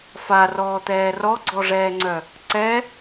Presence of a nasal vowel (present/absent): absent